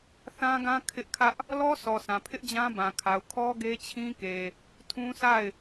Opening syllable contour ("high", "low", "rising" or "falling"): high